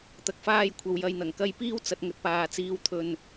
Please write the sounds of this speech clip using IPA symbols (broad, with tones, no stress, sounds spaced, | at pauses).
t̪ ɐ˨ k̚ f aː˧ j kʷʰ ɐ˨ w j ɐ˨ j n̪ ɐ˨˩ ŋ k ɐ˧ j p iː˥ w t͡s ɐ˧ t̚ ŋ ɵ˨ t̚ p aː˨ t͡s iː˨ w t̪ʰ ɵ˨ n